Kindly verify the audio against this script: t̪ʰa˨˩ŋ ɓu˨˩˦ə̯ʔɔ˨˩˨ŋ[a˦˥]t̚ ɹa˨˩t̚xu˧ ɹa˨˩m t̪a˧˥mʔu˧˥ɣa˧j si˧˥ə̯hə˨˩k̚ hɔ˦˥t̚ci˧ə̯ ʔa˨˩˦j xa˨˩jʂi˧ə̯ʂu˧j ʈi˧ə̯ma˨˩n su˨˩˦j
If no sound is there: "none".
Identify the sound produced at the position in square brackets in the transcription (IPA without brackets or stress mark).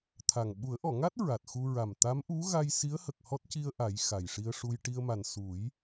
a˦˥